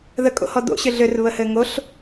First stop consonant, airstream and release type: ejective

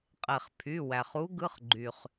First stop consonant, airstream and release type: ejective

